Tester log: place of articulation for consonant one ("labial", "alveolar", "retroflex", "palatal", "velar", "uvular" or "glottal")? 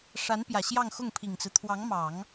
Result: retroflex